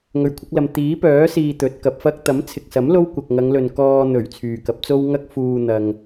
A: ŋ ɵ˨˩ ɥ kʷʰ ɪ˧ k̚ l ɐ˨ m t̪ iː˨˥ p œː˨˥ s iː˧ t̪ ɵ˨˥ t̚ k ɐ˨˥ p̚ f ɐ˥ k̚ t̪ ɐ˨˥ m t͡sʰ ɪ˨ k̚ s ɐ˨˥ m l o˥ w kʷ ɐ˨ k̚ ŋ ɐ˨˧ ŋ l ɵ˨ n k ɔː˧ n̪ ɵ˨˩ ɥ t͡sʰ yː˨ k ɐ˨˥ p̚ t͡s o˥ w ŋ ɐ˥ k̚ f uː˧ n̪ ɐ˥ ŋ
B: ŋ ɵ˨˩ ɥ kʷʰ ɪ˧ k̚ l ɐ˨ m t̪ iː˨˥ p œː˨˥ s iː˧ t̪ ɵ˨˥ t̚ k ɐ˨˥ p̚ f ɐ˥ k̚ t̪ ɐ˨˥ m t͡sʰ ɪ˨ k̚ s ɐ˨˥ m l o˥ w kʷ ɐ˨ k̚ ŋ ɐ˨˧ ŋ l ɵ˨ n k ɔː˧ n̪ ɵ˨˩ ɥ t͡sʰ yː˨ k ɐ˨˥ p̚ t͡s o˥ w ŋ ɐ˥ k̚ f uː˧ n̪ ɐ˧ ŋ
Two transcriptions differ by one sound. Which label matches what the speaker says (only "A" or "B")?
B